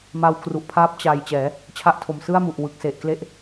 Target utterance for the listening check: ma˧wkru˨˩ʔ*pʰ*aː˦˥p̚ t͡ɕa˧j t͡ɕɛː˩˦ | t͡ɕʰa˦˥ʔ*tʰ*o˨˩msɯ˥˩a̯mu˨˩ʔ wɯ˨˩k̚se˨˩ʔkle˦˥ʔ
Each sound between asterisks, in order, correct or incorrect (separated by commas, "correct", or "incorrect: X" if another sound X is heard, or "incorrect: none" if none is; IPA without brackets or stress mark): correct, correct